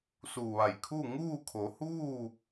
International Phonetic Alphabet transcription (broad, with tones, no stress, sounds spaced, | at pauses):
s u˧˩ ʋ a˧˩ j kʰ u˥˨ ŋ uː˥˨ kʰ o˩˧ h uː˥˨